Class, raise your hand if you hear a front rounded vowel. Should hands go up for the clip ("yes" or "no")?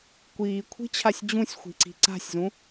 no